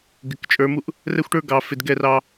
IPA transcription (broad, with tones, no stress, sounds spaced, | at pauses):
ɡ ɪ˨ k t͡ʃʼ ə˞˨˦ m u˦ ʔ | r ɛ˦ xʷ ʈ ə˞˦ ɡ ɑ˨ f ɪ˨ d ɡ ɛ˦˨ r ɑ˦